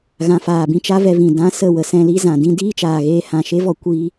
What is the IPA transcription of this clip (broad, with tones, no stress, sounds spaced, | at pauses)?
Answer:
ɣ ã˧ f aː˧ b ĩ˧ t͡ʃ a˦ v ɛ˧ v ĩ˨ d ã˦ s ə˦˨ w ə˧ s ɛ̃˧ l i˦ z ã˨ d ĩ˦ d iː˦ t͡ʃ aː˨ ɣ eː˧ h ã˨ ʃ e˦ v ɔ˧ kʷ iː˧